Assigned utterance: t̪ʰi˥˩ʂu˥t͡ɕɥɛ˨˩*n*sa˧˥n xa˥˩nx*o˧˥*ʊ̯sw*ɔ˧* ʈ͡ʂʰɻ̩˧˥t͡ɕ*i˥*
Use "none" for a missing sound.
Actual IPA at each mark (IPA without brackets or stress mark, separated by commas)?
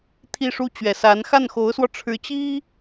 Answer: none, o˧˥, ɔ˧, i˥